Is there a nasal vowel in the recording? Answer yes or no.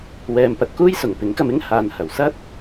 no